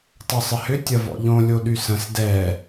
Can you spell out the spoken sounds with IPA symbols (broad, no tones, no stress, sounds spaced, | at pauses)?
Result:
tˤ œ sˤ ɪ h ʏ tʲ ɐ v ɔ̰ ʎ õ lʲ o ɗ y s ə̃ s d ɛ